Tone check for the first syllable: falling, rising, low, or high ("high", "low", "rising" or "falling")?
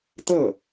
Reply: falling